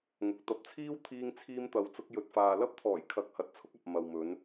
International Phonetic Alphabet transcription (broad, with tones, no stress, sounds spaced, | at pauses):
ŋ ʊ˨ k̚ t̪ ɐ˧ p̚ t͡sʰ iː˥ w t̪ʰ iː˧ ŋ t͡sʰ iː˧ m t̪ ɐ˨ w t͡s ʊ˧ k̚ j ɵ˨ t̚ f aː˨ l ɐ˥ p̚ t̪ʰ ɔː˨˩ j kʰ ɐ˨˥ k̚ h ɐ˨ t̚ t͡sʰ ʊ˥ k̚ ɐ˨ p̚ m ɐ˨ w m ɵ˨˧ n